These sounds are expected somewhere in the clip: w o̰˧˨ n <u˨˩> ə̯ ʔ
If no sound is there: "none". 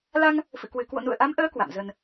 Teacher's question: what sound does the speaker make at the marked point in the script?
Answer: ṵ˧˨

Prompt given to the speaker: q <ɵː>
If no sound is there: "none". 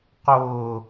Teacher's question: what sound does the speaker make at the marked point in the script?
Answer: ʊː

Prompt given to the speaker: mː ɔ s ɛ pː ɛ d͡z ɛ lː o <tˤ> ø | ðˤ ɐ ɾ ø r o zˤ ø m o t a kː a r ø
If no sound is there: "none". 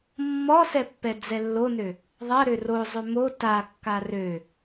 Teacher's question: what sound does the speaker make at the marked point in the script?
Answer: n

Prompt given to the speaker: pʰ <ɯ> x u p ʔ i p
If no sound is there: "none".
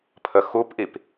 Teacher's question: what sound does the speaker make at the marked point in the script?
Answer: ə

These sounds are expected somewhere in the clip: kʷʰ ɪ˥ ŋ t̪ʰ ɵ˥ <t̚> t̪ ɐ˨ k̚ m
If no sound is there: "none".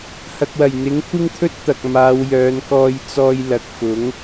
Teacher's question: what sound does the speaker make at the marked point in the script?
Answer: t̚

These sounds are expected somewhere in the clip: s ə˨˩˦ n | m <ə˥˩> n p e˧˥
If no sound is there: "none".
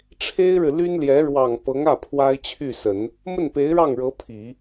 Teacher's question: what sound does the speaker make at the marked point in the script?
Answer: ə˥˩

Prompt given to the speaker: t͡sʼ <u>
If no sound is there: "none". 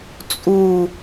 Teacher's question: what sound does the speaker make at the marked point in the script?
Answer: u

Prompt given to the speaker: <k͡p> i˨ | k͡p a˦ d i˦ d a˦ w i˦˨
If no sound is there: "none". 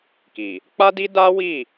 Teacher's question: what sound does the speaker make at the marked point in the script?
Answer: k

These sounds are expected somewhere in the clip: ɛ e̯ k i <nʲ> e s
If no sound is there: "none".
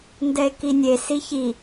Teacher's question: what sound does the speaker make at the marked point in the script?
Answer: nʲ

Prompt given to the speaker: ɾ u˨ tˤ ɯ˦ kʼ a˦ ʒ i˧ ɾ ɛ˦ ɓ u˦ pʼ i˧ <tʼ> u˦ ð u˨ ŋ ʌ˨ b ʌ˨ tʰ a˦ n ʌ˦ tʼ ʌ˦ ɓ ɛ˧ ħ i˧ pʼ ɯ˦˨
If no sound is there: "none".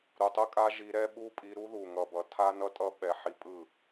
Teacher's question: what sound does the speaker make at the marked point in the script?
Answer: ɾ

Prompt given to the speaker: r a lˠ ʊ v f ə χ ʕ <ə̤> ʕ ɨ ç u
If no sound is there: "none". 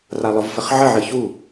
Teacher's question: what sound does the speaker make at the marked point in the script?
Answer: ə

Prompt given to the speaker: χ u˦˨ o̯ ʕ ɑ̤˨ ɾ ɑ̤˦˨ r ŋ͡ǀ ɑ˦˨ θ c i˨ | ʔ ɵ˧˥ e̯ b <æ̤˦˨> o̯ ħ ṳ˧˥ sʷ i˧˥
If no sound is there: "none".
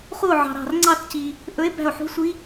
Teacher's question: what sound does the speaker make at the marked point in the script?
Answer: æ̤˦˨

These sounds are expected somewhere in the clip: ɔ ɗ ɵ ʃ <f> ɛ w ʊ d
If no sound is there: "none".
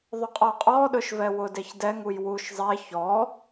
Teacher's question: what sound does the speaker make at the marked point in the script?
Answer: v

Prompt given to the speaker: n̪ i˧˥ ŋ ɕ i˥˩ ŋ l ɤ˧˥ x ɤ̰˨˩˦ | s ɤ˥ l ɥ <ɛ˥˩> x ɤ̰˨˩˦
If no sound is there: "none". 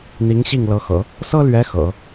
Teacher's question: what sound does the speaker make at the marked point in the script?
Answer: ɛ˧˥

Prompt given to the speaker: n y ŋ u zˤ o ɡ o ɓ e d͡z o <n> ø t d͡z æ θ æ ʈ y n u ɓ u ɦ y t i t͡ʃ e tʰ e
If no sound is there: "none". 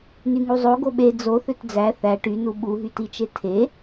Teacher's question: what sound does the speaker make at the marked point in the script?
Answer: θ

